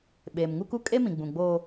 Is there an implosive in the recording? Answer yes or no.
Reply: yes